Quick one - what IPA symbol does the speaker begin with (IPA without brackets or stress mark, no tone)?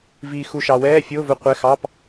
v